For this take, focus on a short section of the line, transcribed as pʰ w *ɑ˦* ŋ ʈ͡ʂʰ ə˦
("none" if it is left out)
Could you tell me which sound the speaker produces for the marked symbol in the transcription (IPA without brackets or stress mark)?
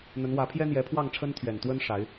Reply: ɑ˥˨